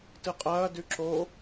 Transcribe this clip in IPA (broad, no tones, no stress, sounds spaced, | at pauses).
t ɨ qʼ ɐː d ʉ ǁ o